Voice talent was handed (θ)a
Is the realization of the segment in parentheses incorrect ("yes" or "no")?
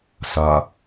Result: yes